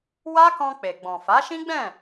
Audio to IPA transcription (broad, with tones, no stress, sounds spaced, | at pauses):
w a˦ k ɔ̃˧ k͡p e˨ ɡ͡b ɔ̃˨ f a˨˦ ʃ ĩ˦ ɡ͡b ɛ̃˦˨